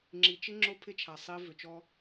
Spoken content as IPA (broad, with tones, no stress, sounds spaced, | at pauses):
ŋ͡ǁ i˨ t͡ʃ ɪ˦ ŋ͡ǁ o˦ pʰ ɪ˦ t͡ʃʰ a˨ sˤ i˦ v ʏ˨ t͡ʃ ɔ˦